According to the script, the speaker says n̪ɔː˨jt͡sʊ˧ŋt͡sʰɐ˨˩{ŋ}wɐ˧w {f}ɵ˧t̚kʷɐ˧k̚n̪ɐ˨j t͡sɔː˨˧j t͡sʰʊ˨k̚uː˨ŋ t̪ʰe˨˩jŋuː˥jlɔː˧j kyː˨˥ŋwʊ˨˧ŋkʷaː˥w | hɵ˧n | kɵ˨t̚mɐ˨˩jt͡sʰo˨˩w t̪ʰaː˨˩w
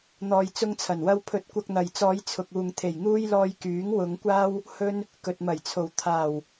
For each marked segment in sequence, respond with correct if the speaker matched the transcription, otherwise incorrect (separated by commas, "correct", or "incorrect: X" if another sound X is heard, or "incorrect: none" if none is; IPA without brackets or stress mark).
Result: incorrect: n, incorrect: pʰ